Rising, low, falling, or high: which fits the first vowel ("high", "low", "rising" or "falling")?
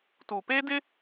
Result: low